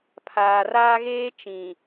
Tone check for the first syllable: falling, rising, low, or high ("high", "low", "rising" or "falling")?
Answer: low